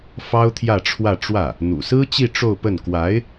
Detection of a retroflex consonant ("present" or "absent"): present